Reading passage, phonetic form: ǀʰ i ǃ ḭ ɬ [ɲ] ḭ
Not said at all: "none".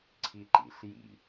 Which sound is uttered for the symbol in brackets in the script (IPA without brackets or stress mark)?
j